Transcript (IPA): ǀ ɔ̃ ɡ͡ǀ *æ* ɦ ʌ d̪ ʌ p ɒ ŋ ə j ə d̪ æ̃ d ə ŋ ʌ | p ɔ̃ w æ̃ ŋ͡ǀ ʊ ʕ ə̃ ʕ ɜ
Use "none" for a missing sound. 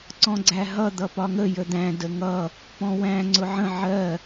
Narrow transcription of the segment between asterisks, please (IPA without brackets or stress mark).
æ